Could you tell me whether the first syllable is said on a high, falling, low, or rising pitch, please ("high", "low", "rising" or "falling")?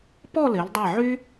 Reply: falling